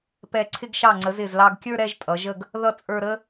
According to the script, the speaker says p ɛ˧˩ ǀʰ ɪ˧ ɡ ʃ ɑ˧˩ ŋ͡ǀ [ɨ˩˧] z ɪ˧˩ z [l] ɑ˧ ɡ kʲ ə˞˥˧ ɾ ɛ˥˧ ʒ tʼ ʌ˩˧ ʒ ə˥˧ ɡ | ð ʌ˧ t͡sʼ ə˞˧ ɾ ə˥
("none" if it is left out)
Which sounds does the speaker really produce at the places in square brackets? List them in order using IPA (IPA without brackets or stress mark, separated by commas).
ə˩˧, l